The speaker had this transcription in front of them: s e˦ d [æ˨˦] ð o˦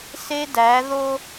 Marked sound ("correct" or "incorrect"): correct